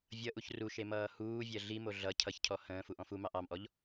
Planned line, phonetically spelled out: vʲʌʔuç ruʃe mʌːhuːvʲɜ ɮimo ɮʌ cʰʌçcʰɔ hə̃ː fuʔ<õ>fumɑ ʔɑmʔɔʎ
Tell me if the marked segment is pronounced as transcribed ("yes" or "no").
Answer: no